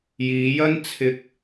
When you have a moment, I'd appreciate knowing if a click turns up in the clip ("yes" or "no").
no